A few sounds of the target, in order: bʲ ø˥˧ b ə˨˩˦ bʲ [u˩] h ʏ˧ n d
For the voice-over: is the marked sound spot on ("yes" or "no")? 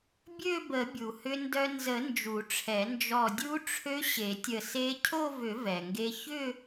yes